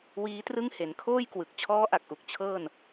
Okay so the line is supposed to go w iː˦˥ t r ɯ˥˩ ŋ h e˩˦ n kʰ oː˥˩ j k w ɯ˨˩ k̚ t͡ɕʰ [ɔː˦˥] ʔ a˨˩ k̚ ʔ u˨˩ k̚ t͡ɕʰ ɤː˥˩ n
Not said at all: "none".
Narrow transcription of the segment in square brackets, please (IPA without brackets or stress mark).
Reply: ɔː˦˥